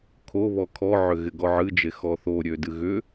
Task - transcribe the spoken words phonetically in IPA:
kʰoβɔ kʰɔʕʏ ɣɪɡɔʕɨd͡ʒe xɔθoɾʲø dɨɣʏ

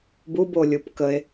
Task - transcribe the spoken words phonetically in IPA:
bubo lʲupkəe̯

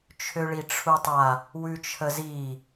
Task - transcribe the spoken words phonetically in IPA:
t͡ʃʰøɭiʈ͡ʂʰutˤa | wʉt͡ʃʰəzi

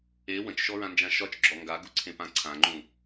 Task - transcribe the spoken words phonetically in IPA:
e wə̃t͡ʃʃɔɹãnd͡ʒã ʃɒt͡ʃɡ͡ǁɔ ŋɡaɡuǀʰẽpã ǀʰãŋ͡ǃũ

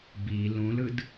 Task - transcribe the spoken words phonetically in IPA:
bi lũlɯd

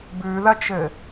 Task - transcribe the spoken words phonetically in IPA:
bʉðɐt͡ʃɘ

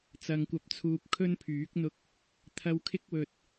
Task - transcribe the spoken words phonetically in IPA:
t͡sɐ˨ŋkʷɐ˨˥p̚t͡sʰuː˨p̚ kʰɵ˥n pʰyː˨˥k̚n̪ʊ˧k̚ | t̪ʰɐ˨˧wkʰɪ˧k̚wɵ˨t̚

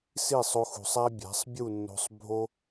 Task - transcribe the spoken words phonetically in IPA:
si˦˨sˤo˧xṳ˨sˤæ˦ bʲæ̤˨˦sˤbʲu˦˨nːo̤˧sˤ bʱo˦

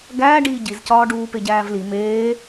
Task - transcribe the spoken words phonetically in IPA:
ɡæːɖiː ɟizcɒː ɖuːpeɟæːvli meː

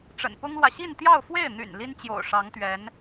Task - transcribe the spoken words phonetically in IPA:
ʈ͡ʂə̰˨˩npʊ˥ŋlwä˨ ɕi˥˧nt̪jɑ˥˧ʊ̯fwe˥˩ɪ̯n̪y̰˨˩n li˥nt͡ɕjo̰˨˩ʊ̯ʂɑ˧˥ŋt̪ɥɛ˧˥n

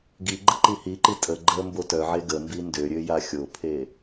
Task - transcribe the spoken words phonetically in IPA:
ɡi ɡ͡ǃəǃihiǃi tʼə ɡ͡ǃə mbotœʕe ɡə mbindøɾʲø jaxʲopʰe

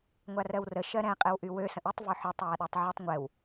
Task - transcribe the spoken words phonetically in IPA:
ŋʷarɜwrə ʃɜɾɛ̃ qʼɛwʔywø sə̃ʔytˤ vøħøtˤ waɗatˤʕytˤ ŋʷɛw

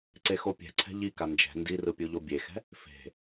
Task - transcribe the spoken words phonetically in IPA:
ǀexopʲɛ̤ǀʰɛ̤ ʎika nd͡ʒɛ̤ ndirɯ pʲuʎobʲexɛ̤ | fe̤

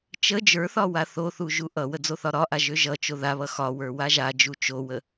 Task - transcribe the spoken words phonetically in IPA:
t͡ʃə d͡ʒə˞θɒ waθoθu ʒuʔʌwə d͡zoθɒɾɒʔa ʒøʒʌt͡ʃo ðaβʌ xɒwə˞ waʒad͡ʒu t͡ʃowə

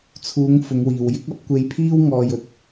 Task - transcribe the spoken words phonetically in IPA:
t͡sʰuː˨˧ŋ fʊ˨˧ŋwiː˨wjɪ˥k̚ ɐ˨˥p̚kʷe˧jpʰiː˥w ŋɔː˧jɵ˨t̚

